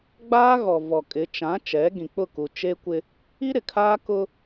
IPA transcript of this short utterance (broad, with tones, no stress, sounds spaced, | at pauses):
ɡ͡b aː˦ ɣ ɔ˨ v ɔ˨ kʼ ɪ˨˦ t͡ʃ ã˨˦ t͡ʃ ɛ˨˦ ɡ ĩ˨ k͡p ʊ˦˨ k u˨ t͡ʃ e˦ kʷ ɪ˦ | i˦ ɾ ɪ˨ kʰ aː˦ k ʊ˦